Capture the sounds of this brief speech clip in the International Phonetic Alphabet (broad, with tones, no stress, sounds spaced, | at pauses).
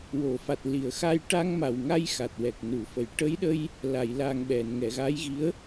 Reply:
w o˨˩˨ f a˨˩ t̚ l i˨˩˨ ə̯ x a˧ j ʈ a˧ ŋ m a˨˩ w ŋ a˧ j x a˨˩ t̚ w ɛ˨˩ k̚ n u˨˩˨ f ə˨˩ j ʈ ə˧˥ j ɗ ə˧ j | l a˨˩˨ j l a˨˩ ŋ ɓ ɛ˨˩˨ n ŋ ɛ˨˩˨ ɣ a˧˥ j ɣ i˧˥ ə̯